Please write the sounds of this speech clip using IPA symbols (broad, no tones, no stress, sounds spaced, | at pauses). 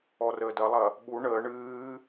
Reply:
ɔ r əː d ɐ lˠ ɐ | ɓ u ɳ əː ɳ ɨː